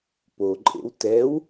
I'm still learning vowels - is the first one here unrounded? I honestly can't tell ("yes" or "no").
no